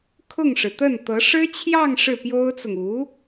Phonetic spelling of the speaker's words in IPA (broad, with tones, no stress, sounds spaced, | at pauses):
kʰ ʊ˥˩ ŋ ʂ ɻ̩˩ t̪ ə˥˩ n t̪ ɤ˧˥ ʂ ɻ̩˥ t͡ɕʰ j ɑ˥˧ ŋ ʂ ɻ̩˥˩ p j o˥ ʊ̯ t͡s ʊ˨ ŋ u˧˥